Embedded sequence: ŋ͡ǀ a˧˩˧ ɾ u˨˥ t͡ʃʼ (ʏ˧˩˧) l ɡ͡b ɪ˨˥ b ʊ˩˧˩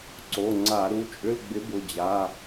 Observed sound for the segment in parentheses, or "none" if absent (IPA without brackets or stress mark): ʏ˧˥˧